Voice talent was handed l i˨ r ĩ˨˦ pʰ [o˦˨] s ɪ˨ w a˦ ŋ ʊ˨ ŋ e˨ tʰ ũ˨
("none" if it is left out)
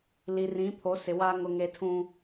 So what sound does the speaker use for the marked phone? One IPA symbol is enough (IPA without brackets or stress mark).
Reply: o˨˦